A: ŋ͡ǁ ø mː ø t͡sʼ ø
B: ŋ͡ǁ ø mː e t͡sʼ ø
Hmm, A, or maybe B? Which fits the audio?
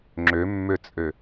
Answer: A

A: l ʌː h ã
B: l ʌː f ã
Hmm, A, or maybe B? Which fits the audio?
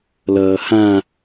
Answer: A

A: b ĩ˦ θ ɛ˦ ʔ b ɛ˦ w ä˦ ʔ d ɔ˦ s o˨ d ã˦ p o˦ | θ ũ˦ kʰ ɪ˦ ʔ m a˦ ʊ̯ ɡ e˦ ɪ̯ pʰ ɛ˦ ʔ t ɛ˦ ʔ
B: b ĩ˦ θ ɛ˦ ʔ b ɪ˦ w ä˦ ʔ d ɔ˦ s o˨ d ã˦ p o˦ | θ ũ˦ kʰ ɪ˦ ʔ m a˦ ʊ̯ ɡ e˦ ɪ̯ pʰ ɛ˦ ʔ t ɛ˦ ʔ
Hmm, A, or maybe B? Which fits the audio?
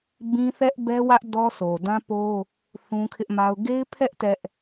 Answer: A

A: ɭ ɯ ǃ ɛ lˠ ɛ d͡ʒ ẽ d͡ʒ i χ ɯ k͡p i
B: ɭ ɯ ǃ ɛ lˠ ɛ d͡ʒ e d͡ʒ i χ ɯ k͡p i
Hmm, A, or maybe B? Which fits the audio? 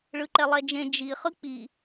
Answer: A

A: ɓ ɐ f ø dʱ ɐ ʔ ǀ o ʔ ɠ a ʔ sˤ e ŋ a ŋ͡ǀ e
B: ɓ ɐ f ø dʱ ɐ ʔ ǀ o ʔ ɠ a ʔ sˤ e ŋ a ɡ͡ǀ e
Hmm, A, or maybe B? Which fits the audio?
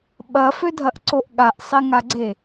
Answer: B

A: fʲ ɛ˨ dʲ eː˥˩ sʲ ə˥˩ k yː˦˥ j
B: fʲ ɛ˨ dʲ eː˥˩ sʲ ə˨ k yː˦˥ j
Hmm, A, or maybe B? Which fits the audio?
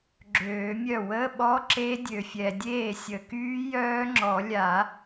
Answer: B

